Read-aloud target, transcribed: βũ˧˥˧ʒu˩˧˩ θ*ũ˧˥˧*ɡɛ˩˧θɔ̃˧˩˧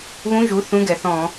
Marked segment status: correct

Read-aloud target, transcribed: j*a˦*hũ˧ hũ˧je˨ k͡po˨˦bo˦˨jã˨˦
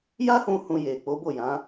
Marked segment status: correct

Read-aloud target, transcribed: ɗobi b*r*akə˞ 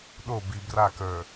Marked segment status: correct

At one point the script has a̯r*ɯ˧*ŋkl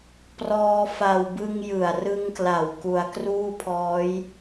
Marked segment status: correct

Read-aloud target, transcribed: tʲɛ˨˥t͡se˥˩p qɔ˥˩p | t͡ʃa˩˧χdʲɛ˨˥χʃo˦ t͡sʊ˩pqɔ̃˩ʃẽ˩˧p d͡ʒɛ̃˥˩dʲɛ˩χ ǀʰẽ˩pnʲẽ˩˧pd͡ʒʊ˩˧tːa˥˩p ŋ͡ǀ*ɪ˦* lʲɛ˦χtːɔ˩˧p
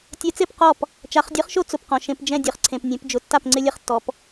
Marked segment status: correct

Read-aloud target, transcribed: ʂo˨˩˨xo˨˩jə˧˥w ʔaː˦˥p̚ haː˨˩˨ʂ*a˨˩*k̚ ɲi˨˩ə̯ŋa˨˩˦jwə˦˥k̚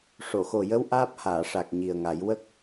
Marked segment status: correct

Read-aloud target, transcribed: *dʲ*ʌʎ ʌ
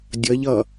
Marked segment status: correct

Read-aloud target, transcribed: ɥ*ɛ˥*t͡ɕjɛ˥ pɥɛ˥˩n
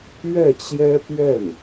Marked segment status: incorrect: ɛ˥˩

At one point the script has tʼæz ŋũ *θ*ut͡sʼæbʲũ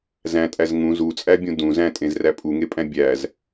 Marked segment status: incorrect: z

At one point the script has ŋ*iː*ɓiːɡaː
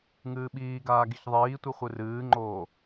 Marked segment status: incorrect: ɨː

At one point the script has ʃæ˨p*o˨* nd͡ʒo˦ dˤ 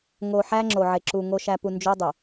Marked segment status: incorrect: u˨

